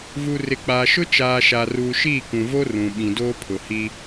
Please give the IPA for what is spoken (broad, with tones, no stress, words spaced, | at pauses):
vu˨ rɪ˨k͡paː˨ʃʊ˦ t͡ʃaː˨ʃa˨ ruː˨ʃiː˦˨kũ˨vo˦ rũ˨ ɓĩ˨doː˦ pʰʊ˨hi˦